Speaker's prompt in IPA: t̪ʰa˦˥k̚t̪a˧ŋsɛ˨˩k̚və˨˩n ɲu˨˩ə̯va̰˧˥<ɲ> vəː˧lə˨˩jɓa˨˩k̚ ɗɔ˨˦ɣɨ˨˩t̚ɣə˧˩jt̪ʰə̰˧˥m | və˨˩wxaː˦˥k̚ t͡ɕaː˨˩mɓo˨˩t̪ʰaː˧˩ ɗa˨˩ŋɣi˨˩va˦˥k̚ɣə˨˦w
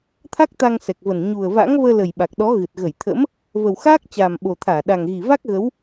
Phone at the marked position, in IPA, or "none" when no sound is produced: ŋ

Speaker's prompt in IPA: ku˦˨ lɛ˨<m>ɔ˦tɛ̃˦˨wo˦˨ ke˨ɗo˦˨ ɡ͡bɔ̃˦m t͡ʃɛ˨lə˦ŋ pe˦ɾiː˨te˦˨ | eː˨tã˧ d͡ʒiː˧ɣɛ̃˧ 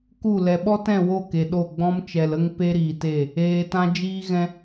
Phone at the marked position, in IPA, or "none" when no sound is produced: ɓ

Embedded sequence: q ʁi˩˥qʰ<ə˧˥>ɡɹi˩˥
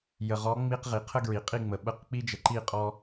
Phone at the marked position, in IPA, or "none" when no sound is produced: ə˥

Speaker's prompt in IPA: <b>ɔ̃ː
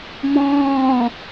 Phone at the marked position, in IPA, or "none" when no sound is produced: m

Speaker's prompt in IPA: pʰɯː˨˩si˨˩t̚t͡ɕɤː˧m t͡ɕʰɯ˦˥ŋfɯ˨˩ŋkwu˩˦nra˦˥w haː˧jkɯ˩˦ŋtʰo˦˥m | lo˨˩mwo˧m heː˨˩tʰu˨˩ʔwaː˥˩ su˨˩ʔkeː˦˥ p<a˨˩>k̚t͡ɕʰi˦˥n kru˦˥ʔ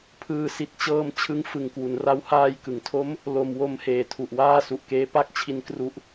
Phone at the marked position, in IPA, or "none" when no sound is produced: a˥˩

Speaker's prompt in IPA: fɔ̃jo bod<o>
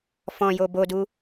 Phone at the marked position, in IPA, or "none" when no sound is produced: u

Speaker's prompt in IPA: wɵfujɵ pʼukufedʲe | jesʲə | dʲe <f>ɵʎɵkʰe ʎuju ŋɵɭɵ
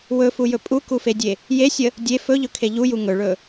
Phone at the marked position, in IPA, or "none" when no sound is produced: f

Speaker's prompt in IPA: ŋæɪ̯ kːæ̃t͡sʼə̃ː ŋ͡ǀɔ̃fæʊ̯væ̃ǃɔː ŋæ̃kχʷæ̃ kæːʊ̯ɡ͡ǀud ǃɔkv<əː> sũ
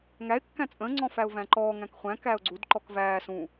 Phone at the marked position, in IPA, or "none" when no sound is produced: æː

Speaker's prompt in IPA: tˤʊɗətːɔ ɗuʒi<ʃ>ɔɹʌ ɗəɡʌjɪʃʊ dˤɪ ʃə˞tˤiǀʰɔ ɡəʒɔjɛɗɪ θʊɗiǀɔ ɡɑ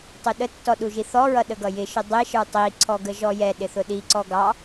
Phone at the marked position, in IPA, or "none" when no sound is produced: θ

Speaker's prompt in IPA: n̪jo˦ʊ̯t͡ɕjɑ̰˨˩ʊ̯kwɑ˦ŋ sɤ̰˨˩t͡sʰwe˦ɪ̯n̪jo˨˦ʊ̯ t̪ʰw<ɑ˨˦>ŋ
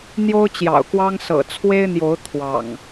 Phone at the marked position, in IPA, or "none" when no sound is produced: ɑ̰˨˩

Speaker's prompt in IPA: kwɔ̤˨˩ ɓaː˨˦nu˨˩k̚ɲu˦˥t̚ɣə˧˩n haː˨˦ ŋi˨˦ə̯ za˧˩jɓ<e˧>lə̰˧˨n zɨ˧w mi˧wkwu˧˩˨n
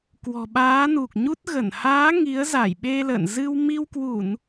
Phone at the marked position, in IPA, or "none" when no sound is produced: e˧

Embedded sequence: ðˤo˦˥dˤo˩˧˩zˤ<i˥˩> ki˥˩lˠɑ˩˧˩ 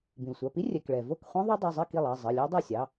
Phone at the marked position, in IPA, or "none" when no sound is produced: i˥˩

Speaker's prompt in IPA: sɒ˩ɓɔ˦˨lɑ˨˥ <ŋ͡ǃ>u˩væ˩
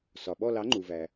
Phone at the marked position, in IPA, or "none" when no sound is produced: ŋ͡ǃ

